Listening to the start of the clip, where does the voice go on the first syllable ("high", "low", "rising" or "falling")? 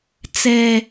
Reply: high